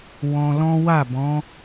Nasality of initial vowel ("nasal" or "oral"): nasal